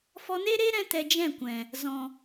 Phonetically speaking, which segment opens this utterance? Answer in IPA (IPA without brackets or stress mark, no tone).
f